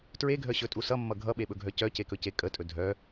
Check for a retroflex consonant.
absent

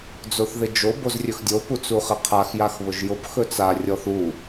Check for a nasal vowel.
absent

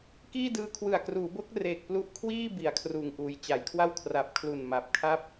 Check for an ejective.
absent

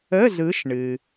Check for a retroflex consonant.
present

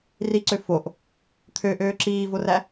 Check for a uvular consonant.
absent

